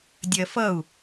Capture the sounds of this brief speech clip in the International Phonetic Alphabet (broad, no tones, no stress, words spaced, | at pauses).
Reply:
dʲɜfʌu̯